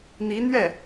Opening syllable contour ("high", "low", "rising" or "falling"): rising